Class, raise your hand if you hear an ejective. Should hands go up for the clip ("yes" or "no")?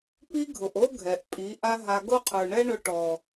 yes